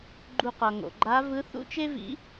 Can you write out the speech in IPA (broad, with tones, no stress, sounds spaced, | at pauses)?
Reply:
ɡ͡ǃ u˧ q ʌ˩ ŋ o̰˩ ɡ͡ǃ a˧˥ v ɯ˧˥ θ ṵ˥ t͡ʃ e˥ v ḭ˧˥